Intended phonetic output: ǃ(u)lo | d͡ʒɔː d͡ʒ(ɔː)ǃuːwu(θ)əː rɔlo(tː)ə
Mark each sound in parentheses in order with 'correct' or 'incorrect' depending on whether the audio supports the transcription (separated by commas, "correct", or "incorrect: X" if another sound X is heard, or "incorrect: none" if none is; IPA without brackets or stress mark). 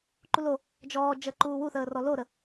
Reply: correct, incorrect: əː, correct, incorrect: ɾ